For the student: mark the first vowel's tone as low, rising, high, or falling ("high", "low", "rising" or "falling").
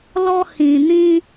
high